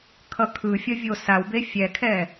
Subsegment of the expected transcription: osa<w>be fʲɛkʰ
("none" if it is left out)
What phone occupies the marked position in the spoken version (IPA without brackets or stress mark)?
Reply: w